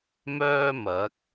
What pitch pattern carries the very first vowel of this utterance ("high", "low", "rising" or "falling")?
high